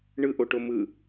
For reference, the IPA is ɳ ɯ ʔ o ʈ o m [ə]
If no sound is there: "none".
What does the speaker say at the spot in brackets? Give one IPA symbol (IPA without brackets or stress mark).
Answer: ɯ